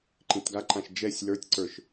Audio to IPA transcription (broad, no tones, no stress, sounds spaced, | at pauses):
ǃ ĩ t ɡ a ǃ ã ʃ d͡ʒ ɛ sʲ l ə˞ tʲ ǀ ə˞ ʃ